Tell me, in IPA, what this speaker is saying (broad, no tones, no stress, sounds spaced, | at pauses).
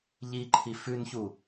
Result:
ʎ i ǃʰ i f ʉ n ç u